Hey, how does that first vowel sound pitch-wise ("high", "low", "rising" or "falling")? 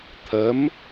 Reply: rising